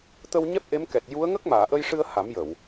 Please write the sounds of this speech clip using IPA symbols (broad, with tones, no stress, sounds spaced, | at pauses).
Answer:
t̪ ə˧ w ɲ ɛ˦˥ p̚ ʔ e˧˥ m k ɛ˨˩ t̚ j u˧˥ ə̯ ŋ ə˦˥ k̚ m aː˨˩˨ ʔ ə˧ j ʂ ɨ˧ ə̯ h a˨˩˦ m j ə˨˩˨ w